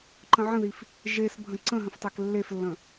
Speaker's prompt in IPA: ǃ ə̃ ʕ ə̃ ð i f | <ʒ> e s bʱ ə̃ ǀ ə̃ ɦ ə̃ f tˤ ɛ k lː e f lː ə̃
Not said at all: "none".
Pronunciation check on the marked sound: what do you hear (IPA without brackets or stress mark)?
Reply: ʒ